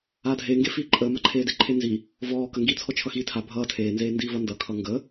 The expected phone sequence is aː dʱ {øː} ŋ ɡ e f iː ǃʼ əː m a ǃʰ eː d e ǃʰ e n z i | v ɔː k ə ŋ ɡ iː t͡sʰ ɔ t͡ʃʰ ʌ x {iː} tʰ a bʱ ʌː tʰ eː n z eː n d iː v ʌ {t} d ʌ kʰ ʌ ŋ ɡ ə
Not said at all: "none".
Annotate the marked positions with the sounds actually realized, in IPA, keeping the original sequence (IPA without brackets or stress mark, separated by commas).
eː, iː, n